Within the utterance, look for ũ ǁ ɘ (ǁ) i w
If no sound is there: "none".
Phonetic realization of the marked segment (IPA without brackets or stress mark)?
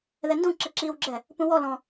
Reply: ǁ